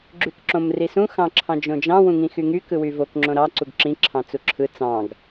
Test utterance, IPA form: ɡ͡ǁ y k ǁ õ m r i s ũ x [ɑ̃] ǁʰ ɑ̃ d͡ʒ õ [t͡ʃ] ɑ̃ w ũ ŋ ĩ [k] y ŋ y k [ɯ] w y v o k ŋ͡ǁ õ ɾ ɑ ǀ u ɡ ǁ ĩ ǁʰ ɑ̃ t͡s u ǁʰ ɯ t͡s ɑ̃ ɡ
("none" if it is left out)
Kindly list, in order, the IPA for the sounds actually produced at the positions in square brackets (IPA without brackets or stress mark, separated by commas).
ɑ̃, d͡ʒ, x, ɯ